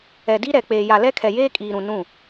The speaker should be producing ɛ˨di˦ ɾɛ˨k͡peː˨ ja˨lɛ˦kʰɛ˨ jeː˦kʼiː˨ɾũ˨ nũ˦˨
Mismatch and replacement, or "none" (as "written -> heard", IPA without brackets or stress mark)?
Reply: none